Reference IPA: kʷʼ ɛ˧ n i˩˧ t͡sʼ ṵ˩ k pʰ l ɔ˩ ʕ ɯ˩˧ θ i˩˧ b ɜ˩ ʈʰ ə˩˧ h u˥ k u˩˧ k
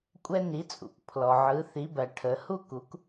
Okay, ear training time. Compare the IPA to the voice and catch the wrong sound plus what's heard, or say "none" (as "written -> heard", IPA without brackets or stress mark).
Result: none